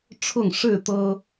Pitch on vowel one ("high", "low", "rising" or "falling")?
falling